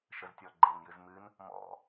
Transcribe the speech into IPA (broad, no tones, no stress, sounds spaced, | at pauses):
ʃ ə z tʲ ɔ ɡ͡ǃ e n j ɨ z m ɨ n | m ɔ̰